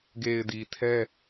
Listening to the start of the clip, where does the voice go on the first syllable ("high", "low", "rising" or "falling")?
low